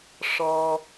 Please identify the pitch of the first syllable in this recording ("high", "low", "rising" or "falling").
high